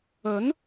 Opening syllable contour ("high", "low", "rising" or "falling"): rising